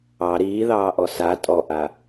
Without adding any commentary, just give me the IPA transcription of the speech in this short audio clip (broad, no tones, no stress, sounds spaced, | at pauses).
ɑ ɾ iː ð ɑː ʔ ɔ s a tʼ ɔ ʔ a